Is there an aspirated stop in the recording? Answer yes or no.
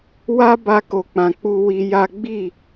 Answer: no